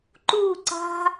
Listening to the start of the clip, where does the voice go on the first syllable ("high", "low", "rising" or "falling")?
falling